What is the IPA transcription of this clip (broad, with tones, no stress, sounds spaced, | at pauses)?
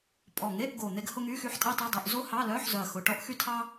pʼ ɔ˨˩ ŋ e˧˥˧ ʔ ɡ o˨˩ n̪ e˥ ɡ h ʊ˥ ŋ y˧˥˧ x y˥ ħ tʼ ɛ˥ tˤ ɛ˧˥˧ dˤ o˧˥˧ ʔ z o˥ h ɑ˧˥˧ l œ˧˥˧ ħ z œ˨˩ ɐ̯ x ʊ˨˩ ʈ ɔ˥ ʔ x y˥ tʰ ɑ˥